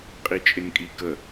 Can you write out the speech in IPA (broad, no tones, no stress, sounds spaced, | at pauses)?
qʼ i t͡ʃʼ ɪ n kʼ i k ə